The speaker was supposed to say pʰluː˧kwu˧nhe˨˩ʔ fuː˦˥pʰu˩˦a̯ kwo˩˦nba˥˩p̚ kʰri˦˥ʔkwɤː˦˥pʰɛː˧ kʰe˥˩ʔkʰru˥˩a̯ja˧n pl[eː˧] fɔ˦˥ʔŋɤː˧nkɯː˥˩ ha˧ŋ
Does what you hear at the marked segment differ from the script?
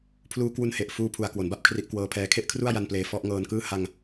no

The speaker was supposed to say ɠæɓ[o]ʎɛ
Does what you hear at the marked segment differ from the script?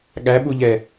yes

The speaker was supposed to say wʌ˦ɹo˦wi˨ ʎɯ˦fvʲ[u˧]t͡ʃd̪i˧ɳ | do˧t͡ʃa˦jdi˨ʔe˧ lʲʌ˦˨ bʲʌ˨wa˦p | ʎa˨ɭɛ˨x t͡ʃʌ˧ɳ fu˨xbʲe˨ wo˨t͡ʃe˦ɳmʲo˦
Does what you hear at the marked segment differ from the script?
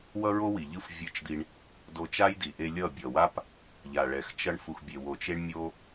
yes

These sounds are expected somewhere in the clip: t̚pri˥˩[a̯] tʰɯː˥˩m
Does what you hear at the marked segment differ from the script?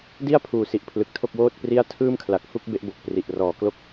no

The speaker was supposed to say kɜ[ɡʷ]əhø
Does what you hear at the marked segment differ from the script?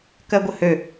no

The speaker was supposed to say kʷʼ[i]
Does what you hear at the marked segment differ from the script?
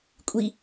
no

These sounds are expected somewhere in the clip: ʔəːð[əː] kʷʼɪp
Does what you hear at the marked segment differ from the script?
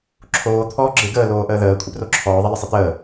no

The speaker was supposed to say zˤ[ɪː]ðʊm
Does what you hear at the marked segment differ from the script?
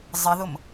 yes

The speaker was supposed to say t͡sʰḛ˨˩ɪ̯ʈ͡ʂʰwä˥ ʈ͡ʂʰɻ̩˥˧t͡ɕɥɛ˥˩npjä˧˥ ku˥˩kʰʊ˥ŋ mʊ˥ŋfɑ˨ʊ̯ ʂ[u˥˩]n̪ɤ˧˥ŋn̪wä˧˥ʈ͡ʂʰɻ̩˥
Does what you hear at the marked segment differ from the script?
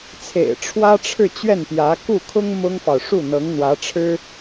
no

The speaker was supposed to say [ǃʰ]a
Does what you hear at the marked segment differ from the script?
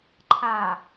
no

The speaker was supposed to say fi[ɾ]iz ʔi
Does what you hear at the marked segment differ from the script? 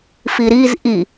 no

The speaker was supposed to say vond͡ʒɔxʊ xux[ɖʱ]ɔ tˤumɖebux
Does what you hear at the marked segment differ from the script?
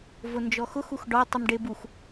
yes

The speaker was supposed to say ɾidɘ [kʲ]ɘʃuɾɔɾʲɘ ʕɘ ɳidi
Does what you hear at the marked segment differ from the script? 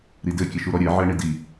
no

